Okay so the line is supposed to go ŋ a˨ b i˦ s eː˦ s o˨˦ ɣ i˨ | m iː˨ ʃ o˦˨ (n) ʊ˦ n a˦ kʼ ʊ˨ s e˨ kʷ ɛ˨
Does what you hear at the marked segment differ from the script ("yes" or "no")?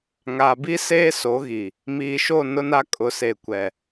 no